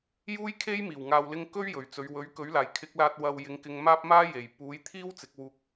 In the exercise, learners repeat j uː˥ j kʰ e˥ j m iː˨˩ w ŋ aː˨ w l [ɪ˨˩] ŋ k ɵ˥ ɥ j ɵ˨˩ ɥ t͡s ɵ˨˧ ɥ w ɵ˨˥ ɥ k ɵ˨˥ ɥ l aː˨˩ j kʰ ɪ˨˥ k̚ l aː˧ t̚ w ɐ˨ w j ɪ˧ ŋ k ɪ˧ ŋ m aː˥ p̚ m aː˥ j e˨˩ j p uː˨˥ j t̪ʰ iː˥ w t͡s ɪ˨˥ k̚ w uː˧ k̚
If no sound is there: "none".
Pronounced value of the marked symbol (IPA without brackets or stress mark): ɪ˧